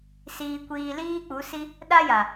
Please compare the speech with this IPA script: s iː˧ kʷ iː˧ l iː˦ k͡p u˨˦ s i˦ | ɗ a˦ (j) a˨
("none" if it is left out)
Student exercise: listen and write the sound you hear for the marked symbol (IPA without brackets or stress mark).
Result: j